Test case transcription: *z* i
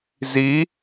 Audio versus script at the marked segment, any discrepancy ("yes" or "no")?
no